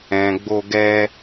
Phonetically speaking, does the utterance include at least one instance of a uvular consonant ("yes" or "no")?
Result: no